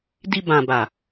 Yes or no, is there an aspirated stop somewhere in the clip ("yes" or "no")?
no